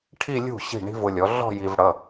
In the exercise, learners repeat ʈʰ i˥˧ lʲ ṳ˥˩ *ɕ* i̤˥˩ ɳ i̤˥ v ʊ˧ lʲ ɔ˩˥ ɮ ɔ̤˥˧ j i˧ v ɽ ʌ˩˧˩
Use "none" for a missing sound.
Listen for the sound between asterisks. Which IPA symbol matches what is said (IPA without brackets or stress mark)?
ɕ